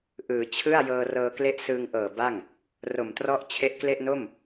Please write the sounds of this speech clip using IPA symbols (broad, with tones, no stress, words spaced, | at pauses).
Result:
ʔɯː˩˦t͡ɕʰɯ˥˩a̯ jɤː˧rɤː˧kle˦˥ʔ sɯː˧ŋʔɤː˨˩ ba˥˩ŋ | ro˨˩mtrɔ˦˥ʔ t͡ɕʰe˦˥ʔkle˥˩ʔno˥˩m